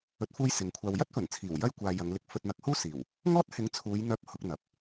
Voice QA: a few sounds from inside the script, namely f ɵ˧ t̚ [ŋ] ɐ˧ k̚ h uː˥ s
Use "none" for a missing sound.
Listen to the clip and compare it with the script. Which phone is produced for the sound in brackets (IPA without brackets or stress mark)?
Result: n̪